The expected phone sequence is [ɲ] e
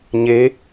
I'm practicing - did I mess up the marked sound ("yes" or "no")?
no